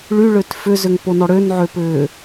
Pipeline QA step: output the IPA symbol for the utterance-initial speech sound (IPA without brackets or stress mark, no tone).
ɭ